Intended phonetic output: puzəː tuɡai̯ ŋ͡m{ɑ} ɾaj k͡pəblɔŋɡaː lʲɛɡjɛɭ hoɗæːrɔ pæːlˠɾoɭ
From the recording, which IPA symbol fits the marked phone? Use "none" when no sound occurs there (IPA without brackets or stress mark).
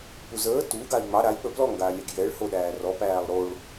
ɑ